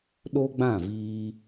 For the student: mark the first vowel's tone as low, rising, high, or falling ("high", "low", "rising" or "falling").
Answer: high